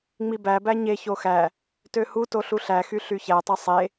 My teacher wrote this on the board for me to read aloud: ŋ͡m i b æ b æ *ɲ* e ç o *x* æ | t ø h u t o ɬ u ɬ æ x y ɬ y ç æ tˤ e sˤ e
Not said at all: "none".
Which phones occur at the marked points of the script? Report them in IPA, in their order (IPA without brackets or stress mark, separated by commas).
ɲ, x